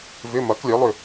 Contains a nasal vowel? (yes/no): no